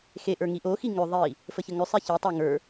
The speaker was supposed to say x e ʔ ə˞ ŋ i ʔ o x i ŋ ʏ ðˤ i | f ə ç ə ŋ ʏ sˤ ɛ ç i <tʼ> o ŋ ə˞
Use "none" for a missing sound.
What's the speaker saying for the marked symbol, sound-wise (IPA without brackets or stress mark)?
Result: tˤ